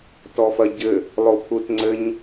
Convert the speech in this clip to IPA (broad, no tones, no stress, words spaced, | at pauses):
tɔfɐɟɘ | lˠopʰutŋ͡ǀɘɲ